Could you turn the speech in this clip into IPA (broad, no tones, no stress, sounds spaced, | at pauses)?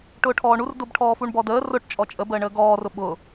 ʈ ʊː ʈʰ ɔː ɳ u r d ʊ b ʈʰ ɔː f u ɳ b ɔ d əː r ʊ ʈ t͡ʃʼ ɔ t͡ʃʼ ə b əː ɳ əː ɡ ɔː r ʊ ɓ ʊ